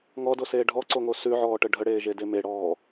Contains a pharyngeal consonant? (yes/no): yes